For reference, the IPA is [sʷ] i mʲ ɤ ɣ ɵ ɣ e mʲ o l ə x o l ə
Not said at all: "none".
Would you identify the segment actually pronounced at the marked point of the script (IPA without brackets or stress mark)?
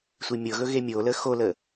sʷ